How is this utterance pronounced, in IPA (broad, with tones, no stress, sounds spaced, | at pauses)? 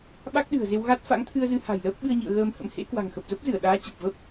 ɓ a˦˥ k̚ ɗ ɨ̤˨˩ ə̯ z e˧ w ɣ a˦˥ t̚ f a̰˧˥ ŋ t̪ʰ ɨ˧ ə̯ z ɨ˨˦ h a̤˨˩ j l əː˦˥ p̚ ɓ ɨ˧ ə̯ ɲ ḭ˧˨ ə̯ ɣ əː˧ m h ə̰˧˥ m h ḛ˧˥ k w a̤˨˩ ŋ x ə˨˩ p̚ z ə˦˥ p̚ z ɨ˧˩ ə̯ ɗ aː˨˦ t͡ɕ ə˨˩ p̚ v ə˦˥ p̚